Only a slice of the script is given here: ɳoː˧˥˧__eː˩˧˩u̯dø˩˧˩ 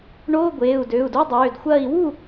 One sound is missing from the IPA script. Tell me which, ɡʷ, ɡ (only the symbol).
ɡʷ